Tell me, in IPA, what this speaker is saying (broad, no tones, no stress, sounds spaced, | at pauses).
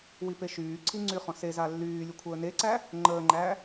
w i p e ʃ yː ǀʰ i ŋ͡ǀ y χ ɔ̃ s e z a lː yː lʲ u kʷʰ əː n e ǀ æ | ŋ͡ǃ əː ŋ͡ǃ æ